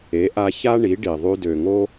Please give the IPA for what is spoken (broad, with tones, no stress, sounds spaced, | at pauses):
e˩˥ ʔ a˧ ç a˥ ɳ i˩˥ ɖ i˩ ðˤ y˧ d ø˩ ŋ o˥